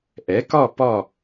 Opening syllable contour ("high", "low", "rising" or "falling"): rising